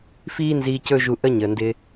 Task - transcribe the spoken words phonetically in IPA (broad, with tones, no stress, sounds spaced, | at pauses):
f iː˦ n z iː˧ c ɵ˦ ʒ u˧ ʔ ə˦ ɲ əː˨ n d ɪː˧